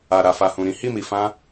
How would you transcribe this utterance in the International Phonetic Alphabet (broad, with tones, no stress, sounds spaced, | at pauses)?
a˨ ɾ a˨ f a˨ h ũ˨ ɾ ĩ˨˦ h i˦˨ m i˨ f ã˧